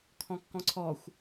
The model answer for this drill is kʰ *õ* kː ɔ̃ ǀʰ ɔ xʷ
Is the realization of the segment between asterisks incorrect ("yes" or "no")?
yes